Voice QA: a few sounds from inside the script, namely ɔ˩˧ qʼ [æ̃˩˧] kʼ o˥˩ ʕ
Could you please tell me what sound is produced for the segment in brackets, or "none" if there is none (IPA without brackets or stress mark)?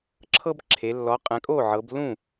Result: ɛ̃˩˧